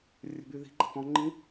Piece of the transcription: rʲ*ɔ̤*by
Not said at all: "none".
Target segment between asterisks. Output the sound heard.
ə̤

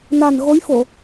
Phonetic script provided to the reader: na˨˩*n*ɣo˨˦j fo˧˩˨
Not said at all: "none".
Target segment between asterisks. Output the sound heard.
n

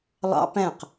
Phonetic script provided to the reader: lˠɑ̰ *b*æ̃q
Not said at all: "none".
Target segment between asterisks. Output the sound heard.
p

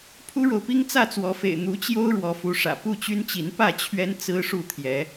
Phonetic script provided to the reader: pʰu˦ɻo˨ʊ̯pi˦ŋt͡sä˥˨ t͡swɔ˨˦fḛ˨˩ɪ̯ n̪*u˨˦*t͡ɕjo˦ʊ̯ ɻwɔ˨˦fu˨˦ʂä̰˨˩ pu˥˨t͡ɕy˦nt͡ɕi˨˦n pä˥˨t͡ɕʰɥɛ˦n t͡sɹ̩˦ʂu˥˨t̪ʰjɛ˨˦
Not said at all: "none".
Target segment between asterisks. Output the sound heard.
u˨˦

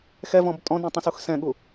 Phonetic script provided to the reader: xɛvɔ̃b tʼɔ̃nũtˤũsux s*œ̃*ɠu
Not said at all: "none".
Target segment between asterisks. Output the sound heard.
ɛ̃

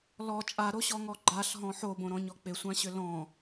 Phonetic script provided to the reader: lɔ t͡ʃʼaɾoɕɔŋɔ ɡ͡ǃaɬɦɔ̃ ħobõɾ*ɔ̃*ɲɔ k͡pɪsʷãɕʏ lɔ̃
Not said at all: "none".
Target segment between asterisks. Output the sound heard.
ɔ̃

